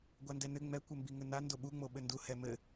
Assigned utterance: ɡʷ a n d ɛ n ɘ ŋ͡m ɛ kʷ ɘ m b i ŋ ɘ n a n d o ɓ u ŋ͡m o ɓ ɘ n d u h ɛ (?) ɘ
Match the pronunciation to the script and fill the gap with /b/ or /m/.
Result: m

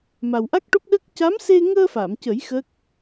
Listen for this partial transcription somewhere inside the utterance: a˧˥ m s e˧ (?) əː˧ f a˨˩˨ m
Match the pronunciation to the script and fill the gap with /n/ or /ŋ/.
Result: ŋ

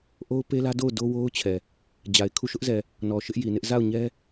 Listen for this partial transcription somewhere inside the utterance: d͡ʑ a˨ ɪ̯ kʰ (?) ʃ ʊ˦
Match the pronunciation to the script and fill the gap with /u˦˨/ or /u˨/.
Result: u˦˨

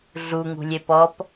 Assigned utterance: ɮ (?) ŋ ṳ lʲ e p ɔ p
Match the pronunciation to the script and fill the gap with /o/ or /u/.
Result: u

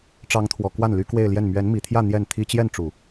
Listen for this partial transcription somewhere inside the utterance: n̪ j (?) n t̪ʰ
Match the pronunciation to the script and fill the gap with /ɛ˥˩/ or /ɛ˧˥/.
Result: ɛ˥˩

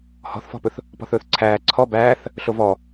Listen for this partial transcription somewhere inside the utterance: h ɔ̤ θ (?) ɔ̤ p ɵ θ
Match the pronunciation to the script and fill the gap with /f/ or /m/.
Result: f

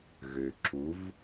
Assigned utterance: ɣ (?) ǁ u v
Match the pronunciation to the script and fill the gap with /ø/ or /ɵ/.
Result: ø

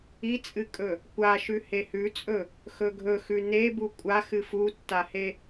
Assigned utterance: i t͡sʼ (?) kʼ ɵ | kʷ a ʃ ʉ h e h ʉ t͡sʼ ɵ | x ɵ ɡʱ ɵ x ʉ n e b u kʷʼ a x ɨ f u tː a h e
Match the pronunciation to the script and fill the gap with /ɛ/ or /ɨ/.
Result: ɨ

